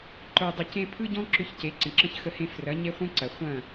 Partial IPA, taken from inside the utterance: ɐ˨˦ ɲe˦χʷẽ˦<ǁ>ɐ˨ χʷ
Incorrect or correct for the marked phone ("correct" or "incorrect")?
incorrect